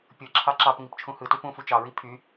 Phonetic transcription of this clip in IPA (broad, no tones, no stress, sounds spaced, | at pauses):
pʲ ɯ ǁʰ ɑ ǁ ɑ p ŋ i p t͡ʃʰ ũ h ɯ t u p ũ f u t͡ʃ ɑ ɹ i pʰ y